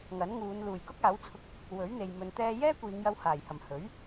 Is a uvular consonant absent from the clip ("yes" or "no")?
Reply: yes